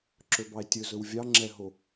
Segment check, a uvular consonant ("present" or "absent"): absent